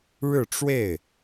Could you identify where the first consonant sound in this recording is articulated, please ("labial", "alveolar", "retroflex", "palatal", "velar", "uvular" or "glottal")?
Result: retroflex